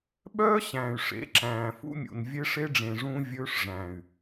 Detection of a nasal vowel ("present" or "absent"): present